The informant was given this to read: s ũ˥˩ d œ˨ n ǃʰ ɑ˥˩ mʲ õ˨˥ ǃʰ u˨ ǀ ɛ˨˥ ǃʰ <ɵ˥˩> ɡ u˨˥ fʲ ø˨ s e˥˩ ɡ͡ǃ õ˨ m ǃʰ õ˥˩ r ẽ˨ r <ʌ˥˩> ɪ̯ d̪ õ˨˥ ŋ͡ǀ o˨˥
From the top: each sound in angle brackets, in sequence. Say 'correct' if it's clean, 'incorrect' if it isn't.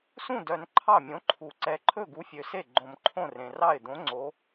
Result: correct, incorrect: ɑ˥˩

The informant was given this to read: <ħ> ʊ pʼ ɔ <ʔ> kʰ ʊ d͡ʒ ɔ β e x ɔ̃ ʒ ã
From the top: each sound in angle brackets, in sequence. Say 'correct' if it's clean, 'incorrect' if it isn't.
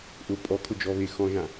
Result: incorrect: ʔ, incorrect: none

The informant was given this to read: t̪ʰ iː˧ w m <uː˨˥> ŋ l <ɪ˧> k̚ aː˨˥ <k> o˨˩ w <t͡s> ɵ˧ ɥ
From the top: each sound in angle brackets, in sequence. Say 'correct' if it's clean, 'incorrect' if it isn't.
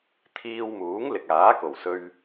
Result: correct, incorrect: ɪ˨, correct, incorrect: s

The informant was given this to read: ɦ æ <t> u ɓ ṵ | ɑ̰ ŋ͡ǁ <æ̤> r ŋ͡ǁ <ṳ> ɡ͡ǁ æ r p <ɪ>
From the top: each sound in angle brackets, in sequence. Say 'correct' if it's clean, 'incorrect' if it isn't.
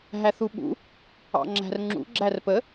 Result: incorrect: θ, correct, incorrect: ṵ, incorrect: ə

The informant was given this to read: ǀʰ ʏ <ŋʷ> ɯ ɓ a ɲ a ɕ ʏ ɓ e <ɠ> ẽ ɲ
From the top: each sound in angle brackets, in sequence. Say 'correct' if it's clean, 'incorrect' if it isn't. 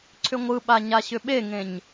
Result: correct, incorrect: ŋ

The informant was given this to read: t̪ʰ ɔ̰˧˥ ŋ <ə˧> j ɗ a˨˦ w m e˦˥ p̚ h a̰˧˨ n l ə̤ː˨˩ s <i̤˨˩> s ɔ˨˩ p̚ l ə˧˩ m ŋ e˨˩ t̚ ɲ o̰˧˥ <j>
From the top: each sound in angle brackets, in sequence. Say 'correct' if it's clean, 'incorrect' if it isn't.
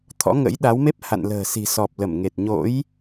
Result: incorrect: ə̰˧˥, correct, correct

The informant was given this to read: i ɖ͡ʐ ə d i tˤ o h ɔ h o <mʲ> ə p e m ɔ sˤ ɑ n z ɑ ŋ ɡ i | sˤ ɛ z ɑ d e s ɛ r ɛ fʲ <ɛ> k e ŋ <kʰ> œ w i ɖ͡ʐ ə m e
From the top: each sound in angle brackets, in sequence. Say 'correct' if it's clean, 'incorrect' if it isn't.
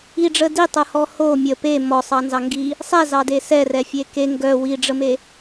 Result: correct, incorrect: e, incorrect: ɡ

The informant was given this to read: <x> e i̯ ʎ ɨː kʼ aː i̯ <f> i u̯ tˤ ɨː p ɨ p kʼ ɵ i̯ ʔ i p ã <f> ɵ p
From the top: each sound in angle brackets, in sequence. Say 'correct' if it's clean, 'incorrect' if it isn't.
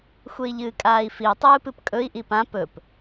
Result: incorrect: xʷ, correct, incorrect: p

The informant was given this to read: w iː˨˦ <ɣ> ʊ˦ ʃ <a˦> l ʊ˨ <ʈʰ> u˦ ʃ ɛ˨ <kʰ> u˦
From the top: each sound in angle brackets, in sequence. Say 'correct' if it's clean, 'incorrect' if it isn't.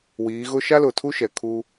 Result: correct, correct, incorrect: tʰ, correct

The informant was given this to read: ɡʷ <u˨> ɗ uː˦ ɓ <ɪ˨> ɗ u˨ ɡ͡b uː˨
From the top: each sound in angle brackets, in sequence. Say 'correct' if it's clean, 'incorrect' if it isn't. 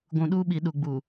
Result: incorrect: ũ˨, incorrect: i˨

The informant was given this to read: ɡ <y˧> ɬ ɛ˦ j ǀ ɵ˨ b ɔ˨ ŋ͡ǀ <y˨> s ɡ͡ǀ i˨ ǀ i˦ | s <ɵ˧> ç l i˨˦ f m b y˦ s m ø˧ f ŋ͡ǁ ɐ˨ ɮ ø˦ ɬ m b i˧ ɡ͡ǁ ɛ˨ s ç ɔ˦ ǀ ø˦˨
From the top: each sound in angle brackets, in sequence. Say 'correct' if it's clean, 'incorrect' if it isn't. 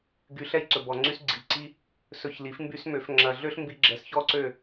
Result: correct, incorrect: y˧, correct

